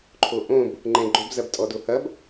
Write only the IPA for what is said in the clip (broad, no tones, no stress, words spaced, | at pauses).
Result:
ǃʰoʔõb | ŋ͡ǃɛ̃ɡ͡ǃobzɐb tʼɔdohɐb